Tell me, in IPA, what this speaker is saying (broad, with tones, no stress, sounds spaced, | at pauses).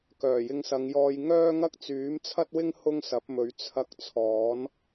k œː˨˩ j ɪ˧ ŋ s ɐ˨˧ ŋ j ɔː˧ j ŋ œː˥ ŋ ɐ˥ k̚ t͡s yː˨˥ m t͡sʰ ɐ˥ t̚ w ɪ˥ ŋ h ʊ˥ ŋ s ɐ˨˥ p̚ m ɵ˨˥ ɥ t͡sʰ ɐ˧ k̚ t͡sʰ ɔː˨˥ n